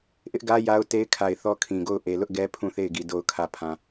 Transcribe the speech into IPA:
ʔ ɪ˦ ʔ ɡ ä˦ j a˦ ʊ̯ t e˦ ɪ̯ kʰ a˨ ɪ̯ θ ɔ˦ kʰ ĩ˨ ɡ o˦˨ ʊ̯ ʔ e˨ l ʊ˦ ʔ ɡ ɛ˦ pʰ ũ˦˨ θ e˦˨ ɪ̯ ɡ i˨ d o˨ ʊ̯ kʰ ä˨ pʰ ã˨

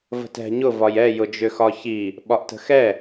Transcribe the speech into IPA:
v ə̤ t ɛ̤ ɲ ʊ v ɒ j ɛ j ʊ d͡ʒ ʏ x ɒ ç i | ɓ ɒ ʔ t ə̤ x ɛ

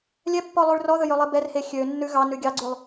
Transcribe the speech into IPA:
lʲ ɛ pː ɔ lˠ ʉ ɭ r ɔ ð ɵ j ɵ lˠ i b ɛ r h e xʲ ø nː ʉ ɣ ɑ n ʉ ɡʲ ɑ ɡ͡ǀ ʉ lˠ

